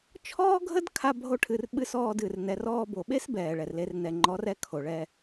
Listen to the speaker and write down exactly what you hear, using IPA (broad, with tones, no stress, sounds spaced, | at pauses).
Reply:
t͡ʃʰ ɔː˦ ɡʱ ə˦ d kʰ a˧ bʱ o˧ ʈʰ ɨ˨ r ɓ ɨ˧ s ɔː˧ d ɨ˨ r n ɛ˨ r ɔː˧ b o˨ ɓ e˦ s b ɛː˨ ɭ ɛ˨ r l e˧ r n ɛ˨ ŋ͡ǃ ɔ˨˦ r ɛ˧ kʰ o˨ ɭ ɛ˧